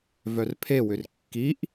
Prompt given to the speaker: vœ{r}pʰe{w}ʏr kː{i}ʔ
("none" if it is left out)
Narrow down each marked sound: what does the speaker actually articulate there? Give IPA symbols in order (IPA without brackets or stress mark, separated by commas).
r, w, i